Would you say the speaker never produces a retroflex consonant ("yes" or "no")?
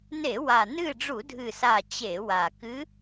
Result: no